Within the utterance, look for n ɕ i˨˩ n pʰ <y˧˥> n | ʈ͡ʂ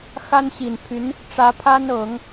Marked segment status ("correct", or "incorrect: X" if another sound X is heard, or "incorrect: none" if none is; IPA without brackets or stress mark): correct